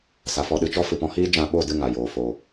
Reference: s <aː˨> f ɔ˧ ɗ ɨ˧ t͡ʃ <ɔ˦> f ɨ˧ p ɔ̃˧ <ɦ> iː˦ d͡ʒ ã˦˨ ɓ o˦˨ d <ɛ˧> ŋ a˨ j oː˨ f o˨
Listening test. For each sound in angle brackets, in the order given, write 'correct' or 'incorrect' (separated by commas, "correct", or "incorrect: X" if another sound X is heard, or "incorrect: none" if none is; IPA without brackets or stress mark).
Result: incorrect: a˨, correct, incorrect: h, incorrect: ɨ˧